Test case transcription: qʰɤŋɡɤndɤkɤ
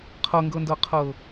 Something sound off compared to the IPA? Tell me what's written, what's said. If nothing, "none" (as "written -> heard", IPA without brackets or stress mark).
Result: k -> qʰ